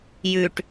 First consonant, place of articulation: palatal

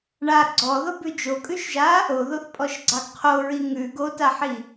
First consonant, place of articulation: retroflex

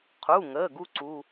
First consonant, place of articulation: uvular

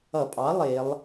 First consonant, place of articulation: labial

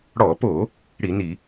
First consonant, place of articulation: retroflex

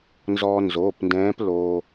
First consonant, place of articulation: alveolar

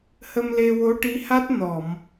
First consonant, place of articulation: glottal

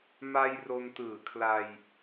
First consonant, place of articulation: labial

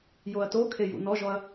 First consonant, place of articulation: palatal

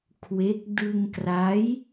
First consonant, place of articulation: velar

